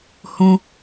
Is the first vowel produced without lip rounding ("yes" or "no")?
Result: no